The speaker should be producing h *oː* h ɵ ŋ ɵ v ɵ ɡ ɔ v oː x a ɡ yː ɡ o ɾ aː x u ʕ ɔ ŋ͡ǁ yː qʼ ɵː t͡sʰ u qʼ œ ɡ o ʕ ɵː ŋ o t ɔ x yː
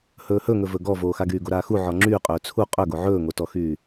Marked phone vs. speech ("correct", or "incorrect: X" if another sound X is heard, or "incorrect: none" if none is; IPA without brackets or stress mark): incorrect: ɵː